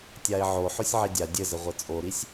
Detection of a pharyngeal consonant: present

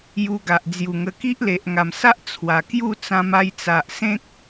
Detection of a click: absent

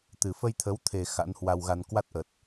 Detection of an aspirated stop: present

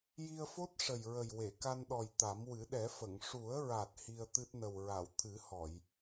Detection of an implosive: present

